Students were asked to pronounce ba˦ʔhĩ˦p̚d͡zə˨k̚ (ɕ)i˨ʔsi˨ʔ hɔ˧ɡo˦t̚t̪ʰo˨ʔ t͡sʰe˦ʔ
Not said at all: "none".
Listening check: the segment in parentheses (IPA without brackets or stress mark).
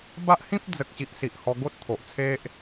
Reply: ɕ